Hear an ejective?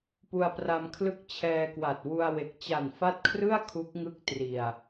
no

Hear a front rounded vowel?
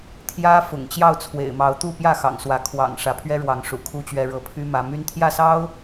yes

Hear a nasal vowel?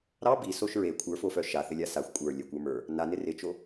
no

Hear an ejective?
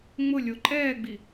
yes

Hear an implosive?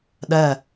yes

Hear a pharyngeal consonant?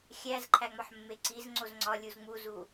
yes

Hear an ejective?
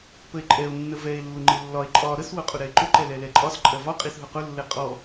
yes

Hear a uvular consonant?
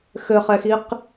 yes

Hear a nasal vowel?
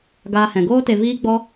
yes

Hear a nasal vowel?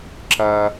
no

